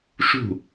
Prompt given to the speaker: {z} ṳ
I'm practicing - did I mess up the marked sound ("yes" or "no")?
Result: yes